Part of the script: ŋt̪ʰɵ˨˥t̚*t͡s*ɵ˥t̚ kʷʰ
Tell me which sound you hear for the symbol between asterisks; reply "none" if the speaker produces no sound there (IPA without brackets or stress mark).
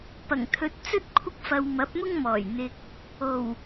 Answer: t͡s